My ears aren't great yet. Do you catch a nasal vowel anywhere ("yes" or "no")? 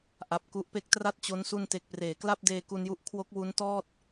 no